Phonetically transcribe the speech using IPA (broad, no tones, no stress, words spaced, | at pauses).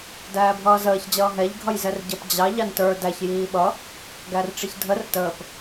dæːbʱʌːzəːç d͡ʑʌːɦɛʎ ɡʱʌjzɛrɟʌp d͡ʑɑ ʎɑntə˞ dæç jiːɓʌ | ɡærʈ͡ʂiçdʱər təːp